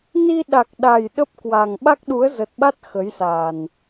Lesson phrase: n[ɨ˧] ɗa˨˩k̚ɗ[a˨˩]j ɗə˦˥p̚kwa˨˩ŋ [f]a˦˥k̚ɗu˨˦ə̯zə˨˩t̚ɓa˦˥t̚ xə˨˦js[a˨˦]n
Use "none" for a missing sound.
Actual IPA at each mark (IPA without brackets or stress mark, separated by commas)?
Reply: i˧, a˨˩, ɓ, a˨˩